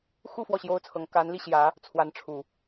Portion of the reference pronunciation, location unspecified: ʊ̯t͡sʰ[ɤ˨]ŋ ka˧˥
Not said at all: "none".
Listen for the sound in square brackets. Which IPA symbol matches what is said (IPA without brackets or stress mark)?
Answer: ɤ˧˥